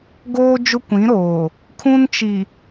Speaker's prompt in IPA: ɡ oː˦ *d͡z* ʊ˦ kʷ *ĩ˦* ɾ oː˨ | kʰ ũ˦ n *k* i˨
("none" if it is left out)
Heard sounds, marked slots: d͡ʒ, ĩ˨˦, t͡ʃ

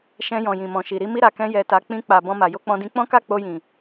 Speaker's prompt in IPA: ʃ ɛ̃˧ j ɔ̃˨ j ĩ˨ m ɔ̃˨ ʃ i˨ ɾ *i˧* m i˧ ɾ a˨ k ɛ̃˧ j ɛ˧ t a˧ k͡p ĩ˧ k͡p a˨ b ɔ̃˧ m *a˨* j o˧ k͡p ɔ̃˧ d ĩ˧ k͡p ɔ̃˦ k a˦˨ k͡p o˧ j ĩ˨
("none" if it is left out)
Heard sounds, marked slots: i˧, a˨

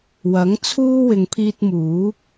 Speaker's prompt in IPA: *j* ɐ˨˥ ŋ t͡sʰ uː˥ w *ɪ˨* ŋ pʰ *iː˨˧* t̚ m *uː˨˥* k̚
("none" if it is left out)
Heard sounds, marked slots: w, ɪ˨, iː˧, uː˨˥

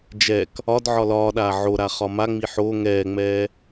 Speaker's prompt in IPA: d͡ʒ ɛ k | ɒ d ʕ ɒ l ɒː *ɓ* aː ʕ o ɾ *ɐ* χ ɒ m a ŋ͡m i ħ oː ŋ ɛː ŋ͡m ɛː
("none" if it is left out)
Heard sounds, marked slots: ɗ, a

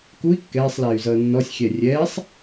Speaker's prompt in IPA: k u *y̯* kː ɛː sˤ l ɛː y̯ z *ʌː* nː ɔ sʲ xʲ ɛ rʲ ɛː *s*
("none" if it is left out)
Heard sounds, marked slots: i̯, ʌː, sˤ

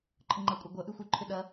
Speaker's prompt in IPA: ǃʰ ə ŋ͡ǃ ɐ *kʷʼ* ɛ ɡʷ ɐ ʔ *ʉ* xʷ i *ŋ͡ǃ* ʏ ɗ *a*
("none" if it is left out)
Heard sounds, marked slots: kʷʼ, ʉ, ǃʰ, ɐ

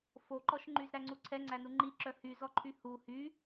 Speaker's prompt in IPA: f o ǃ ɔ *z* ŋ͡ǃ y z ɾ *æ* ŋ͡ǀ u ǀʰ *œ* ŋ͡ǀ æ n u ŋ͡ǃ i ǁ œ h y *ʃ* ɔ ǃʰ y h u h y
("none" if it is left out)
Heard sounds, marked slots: ʃ, æ, ɛ, z

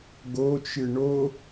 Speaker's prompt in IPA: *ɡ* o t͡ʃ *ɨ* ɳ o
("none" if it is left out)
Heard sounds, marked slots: ɡ, ɨ

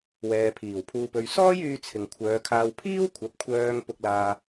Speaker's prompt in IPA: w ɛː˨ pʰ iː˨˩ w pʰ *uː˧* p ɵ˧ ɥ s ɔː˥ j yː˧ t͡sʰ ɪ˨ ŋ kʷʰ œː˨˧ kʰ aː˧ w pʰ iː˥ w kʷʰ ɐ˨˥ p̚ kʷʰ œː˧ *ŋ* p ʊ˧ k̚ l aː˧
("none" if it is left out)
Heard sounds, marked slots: uː˧, ŋ

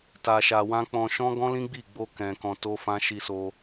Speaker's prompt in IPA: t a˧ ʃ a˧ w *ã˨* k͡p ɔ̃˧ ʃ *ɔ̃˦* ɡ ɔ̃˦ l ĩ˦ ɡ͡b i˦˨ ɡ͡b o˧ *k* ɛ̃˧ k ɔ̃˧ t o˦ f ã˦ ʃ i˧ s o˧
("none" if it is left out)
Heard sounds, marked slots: ã˦, ɔ̃˦, k

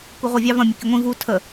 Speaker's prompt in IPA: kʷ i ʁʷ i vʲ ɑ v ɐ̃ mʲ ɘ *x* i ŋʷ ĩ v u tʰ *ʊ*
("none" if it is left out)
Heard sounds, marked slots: k, ə

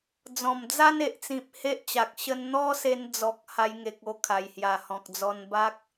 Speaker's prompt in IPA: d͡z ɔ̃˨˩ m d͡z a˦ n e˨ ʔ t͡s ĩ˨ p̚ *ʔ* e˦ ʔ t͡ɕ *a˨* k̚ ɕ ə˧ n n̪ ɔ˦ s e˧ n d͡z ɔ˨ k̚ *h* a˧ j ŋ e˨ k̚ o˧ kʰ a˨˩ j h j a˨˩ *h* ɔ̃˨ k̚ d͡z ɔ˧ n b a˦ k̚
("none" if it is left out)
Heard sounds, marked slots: h, a˨, h, h

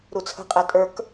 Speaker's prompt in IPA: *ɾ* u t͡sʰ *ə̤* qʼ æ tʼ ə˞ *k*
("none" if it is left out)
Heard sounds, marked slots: ɾ, ə̤, k

